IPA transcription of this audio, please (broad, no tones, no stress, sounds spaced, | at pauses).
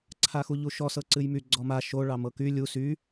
ǀʰ a x u ʎ u ʃ ɔ s ɤ ǀ ɨ j m y ɡ͡ǀ ɔ m a ʃ o ɭ ɑ m ɤ k y lʲ u s y